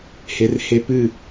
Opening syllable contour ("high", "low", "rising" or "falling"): low